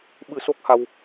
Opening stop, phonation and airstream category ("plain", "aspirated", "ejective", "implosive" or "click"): implosive